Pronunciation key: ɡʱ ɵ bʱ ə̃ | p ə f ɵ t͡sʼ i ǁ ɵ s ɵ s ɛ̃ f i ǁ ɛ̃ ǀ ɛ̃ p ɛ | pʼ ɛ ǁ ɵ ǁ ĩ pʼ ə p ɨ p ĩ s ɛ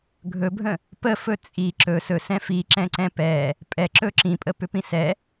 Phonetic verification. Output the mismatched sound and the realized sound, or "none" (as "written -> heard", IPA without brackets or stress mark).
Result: ɨ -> ʏ